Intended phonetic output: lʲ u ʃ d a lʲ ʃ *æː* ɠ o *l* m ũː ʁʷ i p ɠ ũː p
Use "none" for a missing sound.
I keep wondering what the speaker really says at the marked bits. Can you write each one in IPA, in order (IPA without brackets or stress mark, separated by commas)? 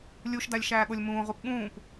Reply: æː, lʲ